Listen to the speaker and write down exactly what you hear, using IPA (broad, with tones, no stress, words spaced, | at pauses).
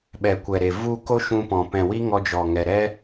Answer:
ɓɛ˨kʷɛ˨ɾe˨ vu˦˨ ko˦ʃũ˧pɔ̃˨ pɛ̃˨wi˦ ŋɔ˧d͡ʒɔ˨ŋɛ˨ɾɛ˦